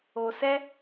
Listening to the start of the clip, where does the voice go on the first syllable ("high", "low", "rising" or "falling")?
low